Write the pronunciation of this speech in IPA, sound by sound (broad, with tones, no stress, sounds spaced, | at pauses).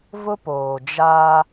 v ʊ˦ p oː˨ d͡ʒ aː˦